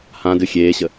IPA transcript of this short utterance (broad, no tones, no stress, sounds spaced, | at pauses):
h ã d ɨ xʲ eː ɕ ə